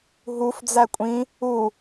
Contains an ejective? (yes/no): yes